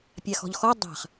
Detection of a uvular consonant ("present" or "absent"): present